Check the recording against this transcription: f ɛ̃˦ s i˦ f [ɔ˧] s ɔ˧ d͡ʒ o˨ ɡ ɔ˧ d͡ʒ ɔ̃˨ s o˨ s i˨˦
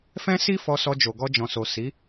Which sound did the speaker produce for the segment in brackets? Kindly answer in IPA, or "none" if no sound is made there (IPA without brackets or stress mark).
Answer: ɔ˧